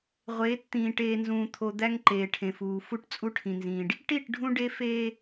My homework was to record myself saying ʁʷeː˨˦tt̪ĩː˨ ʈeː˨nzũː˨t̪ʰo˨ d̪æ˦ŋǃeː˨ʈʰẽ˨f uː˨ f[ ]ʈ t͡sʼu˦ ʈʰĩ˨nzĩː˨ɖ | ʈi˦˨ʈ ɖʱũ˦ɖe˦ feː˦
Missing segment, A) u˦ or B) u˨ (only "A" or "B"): A